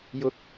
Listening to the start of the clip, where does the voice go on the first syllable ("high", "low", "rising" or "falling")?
rising